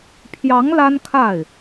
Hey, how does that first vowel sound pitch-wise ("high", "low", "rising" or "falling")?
rising